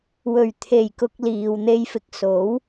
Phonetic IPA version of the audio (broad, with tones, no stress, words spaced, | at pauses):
wɵ˨˩ɥ t̪ʰe˨˩jkʊ˨k̚ liː˨wn̪e˧jfɪ˨˥k̚ so˨˥w